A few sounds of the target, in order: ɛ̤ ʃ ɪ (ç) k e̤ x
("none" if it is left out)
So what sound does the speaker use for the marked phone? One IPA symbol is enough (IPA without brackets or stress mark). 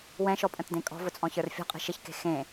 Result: ç